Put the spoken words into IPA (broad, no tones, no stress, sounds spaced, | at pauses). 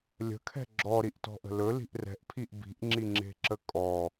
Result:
lʲ ə̤ kʰ ɛ̤ ɡ͡ǁ ɔ ɾ i ʔ t ɔ̤ ʔ ə̤ l ɵ l i̤ ʔ r ɛ̤ ʔ pʰ i ʔ b i̤ ʔ ŋ͡ǁ i ŋ͡ǁ e̤ ǁ ə kʼ ɔ